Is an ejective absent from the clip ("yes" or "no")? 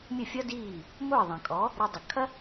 no